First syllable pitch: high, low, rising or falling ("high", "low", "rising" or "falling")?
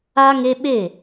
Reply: high